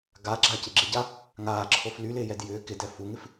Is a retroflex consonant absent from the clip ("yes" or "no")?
yes